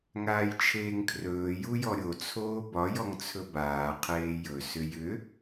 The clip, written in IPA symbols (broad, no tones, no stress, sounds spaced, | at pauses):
ŋ aː j t͡ʃʰ eː ŋ kʰ r ɵː j u j ɔ ɾʲ o t͡sʰ oː b ɒ j ɔ ŋ t͡sʰ ɵ b aː qʰ eː j ɵ s ʏ j ʏ